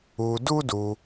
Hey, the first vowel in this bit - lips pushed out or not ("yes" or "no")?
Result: yes